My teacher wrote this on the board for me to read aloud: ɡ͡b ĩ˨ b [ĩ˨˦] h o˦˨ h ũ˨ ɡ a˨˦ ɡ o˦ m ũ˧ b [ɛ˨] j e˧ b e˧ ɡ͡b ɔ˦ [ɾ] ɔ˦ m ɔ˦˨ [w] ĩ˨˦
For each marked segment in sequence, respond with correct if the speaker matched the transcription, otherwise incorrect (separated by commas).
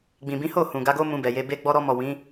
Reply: correct, correct, correct, correct